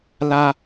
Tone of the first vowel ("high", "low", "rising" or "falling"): high